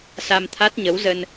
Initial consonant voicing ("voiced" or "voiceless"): voiceless